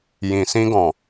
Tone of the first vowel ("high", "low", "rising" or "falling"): low